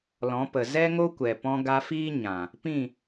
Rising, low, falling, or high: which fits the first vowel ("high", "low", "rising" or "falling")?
rising